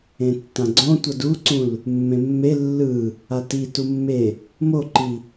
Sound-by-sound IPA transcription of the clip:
ẽtːãɡ͡ǀõ tʷʌduǀũl | mːẽmːe lːɯ | ati tumːe | moǃi

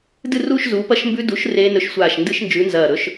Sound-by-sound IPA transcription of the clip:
dɨ˥˧ruː˥˧ʃ zuː˨˥ pɐ˥˧ʃmbʉ˦˥ du˨˥ʃ reː˦˥nɵ˦˥ʃ sʷaː˧˩ʃndɨ˦˥ʃnd͡ʒʉ˨˥nzɐː˧˩ ɾɵ˦˥ʃ

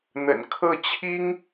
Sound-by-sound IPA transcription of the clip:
n̪ə̰˨˩nkʰɤ˥˩t͡ɕʰi˥ŋ

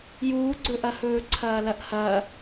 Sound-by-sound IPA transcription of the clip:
juːɡ͡ǀɵʔɐhɵː ǀʰɐːlɐʔhɐː

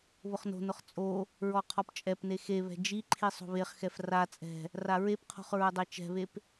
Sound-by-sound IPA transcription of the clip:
βʊχno̤nʊχ t͡sʼo | ɹɔqʰɔpt͡ʃʼɛpne xeβɛ̤ d͡ʒiǃʰi sˤo̤βeχxɛf ra t͡sʼɛ̤ | raɹepqʰo̤χ ɹʊdˤet͡ʃɛ̤βep

